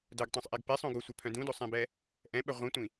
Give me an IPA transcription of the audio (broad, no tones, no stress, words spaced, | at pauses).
dœɡtˤõsˤʔeɡ pesˤõ ɡosʷœpʰœ̃ dũdosˤɛ̃bɛ | ʔɛ̃ɓɛ ʁʷĩtʷĩ